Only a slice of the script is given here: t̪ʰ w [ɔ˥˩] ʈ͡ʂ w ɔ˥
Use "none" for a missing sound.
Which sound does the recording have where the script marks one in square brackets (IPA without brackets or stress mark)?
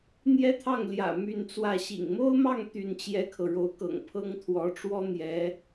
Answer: ɔ˧˥